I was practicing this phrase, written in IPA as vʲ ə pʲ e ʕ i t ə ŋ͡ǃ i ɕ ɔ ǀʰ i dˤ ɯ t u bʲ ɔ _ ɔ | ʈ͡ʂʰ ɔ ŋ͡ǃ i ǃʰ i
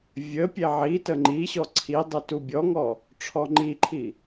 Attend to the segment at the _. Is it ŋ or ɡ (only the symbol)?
ŋ